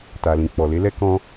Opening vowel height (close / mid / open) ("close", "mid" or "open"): open